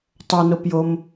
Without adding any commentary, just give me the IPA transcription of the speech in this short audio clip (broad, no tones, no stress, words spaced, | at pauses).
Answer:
tˤʌnopjom